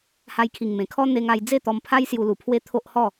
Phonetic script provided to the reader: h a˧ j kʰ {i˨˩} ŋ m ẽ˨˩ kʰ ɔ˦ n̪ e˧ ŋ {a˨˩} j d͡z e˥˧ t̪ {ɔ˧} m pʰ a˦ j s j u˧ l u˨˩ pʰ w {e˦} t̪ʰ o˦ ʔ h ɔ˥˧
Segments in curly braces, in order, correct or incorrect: correct, incorrect: a˧, correct, correct

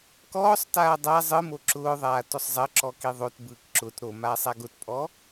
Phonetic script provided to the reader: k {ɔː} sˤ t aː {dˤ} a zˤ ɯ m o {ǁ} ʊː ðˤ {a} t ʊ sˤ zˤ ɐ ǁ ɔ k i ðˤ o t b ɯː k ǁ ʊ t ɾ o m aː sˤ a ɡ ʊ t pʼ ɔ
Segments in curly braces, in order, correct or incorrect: correct, correct, correct, incorrect: aː

